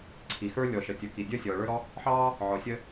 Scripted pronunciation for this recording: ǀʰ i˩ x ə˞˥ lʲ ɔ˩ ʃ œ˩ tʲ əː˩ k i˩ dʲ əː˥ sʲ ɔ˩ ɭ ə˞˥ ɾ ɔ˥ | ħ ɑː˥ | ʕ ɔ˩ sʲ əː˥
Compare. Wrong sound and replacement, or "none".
œ˩ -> ə˩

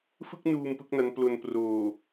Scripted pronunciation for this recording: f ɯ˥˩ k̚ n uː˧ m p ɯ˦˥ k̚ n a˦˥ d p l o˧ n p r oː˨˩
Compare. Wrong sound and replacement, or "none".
d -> n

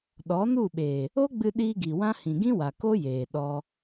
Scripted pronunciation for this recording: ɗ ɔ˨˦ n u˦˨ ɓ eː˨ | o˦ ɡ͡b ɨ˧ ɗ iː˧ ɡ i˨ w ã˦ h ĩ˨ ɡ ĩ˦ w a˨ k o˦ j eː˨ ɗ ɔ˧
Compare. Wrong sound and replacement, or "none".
none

